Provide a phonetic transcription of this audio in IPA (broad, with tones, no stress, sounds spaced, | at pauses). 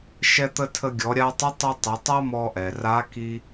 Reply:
ʃ ɛ˧ t̪ ə˧ tʰ ə˧ ɡʲ ɔ˩˧ ɾʲ a˧ tˤ ə˧˥ tˤ ɘ˧ tˤ ɘ˩˧ tˤ a˥ m ɔ˧ ʔ ɛ˩ r a˧˥ k i˧